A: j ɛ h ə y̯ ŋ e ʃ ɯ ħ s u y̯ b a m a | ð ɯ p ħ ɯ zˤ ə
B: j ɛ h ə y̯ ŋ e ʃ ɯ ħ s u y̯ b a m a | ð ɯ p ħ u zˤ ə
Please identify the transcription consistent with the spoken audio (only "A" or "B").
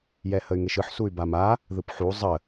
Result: B